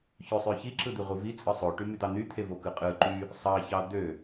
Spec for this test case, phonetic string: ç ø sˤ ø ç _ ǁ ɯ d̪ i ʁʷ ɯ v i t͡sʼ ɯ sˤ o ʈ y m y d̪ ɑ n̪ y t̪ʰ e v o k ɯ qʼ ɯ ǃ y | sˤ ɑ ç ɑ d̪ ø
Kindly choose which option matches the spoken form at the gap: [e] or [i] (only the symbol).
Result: i